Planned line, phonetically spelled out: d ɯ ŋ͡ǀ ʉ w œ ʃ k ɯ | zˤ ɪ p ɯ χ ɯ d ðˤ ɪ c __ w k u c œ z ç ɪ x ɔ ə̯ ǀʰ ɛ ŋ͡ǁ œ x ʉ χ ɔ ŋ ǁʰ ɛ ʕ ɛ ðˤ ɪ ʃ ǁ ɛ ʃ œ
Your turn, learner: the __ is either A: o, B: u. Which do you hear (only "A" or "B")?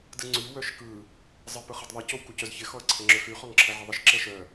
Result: A